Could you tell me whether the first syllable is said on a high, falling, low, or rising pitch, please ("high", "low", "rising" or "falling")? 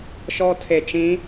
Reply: high